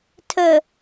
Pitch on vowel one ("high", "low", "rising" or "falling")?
low